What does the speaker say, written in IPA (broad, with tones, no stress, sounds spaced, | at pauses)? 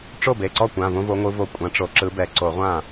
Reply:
ʈ͡ʂ o˥˩ b e˩˧˩ ǀ ɔ˥˩ kʷ ã˩˧˩ v õ˦ v o˨˦ ŋʷ ɯ˨˦ v o˧˩ kʷʼ ã˨˦ ʈ͡ʂ o˨˦ ǁ ɯ˨˦ b ɛ˨˩˦ ǀ o˨˩˦ ʁʷ ã˥˩